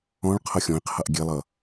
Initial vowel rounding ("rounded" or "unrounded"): rounded